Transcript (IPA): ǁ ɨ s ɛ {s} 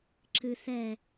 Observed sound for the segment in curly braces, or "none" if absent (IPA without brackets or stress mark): none